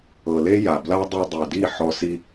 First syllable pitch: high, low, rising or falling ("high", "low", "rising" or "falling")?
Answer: low